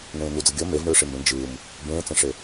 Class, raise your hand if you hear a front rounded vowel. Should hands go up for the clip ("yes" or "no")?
no